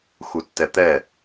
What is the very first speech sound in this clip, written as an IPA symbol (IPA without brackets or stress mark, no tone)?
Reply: x